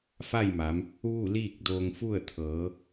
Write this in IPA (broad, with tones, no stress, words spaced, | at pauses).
fa˥˨jma˩˧m | ʋu˥˨liː˥˨k̚doː˧ŋfu˥˨ə̯ t̪ʰɤː˩˧